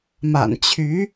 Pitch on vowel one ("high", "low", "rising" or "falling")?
low